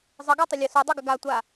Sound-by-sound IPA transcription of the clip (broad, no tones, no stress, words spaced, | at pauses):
zˤəɡɜtˤə lʲə sʉdˤʉɡə ɡatʷa